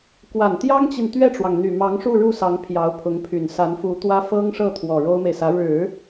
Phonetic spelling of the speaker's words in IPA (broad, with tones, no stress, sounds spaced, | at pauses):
k w a˨˩ n t̪ j ɑ˥ ŋ t͡ɕ i˨ n t̪ ɥ ɛ˥˩ ʈ͡ʂ w ɑ˩ ŋ n̪ y˨˩ m ɑ˧˥ ŋ ʂ u˥˧ ɻ u˥˩ s ɑ˧˥ ŋ pʰ j ɑ˧˥ ʊ̯ pʰ ʊ˧˥ ŋ pʰ y˨˩ n s a˧˥ n f u˧˥ t̪ w ä˥ f ɤ˥ ŋ ʂ ɤ˥˩ t̪ʰ w ɔ˨˩ ɻ o˥ ʊ̯ m e˨ ɪ̯ s ä˧˥ ɻ ɻ̩˨˩˦